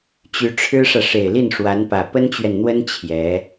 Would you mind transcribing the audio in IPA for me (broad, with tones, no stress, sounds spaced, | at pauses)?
t͡ɕ y˧˥ ʈ͡ʂʰ ɻ̩˥ ʂ ä˨ ʂ e˨˩ ɪ̯ l i˥˩ n ʂ w a˧˥ n p ä˨˩ p ə˥ n t͡ɕ ɥ ɛ˨ n n̪ w ə˥ n t͡ɕʰ j ɛ˧˥